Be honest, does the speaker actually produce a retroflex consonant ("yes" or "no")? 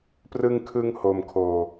no